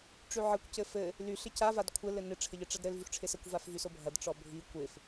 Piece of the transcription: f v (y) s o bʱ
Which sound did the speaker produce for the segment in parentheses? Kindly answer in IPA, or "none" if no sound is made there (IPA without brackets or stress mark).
y